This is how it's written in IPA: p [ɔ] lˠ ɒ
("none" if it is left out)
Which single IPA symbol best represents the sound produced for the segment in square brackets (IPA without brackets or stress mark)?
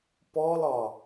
ɔ